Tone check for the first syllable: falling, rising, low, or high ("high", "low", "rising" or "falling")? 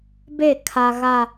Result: falling